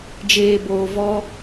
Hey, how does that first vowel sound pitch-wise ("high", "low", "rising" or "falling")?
low